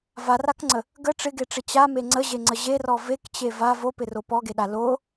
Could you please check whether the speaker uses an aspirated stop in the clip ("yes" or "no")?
no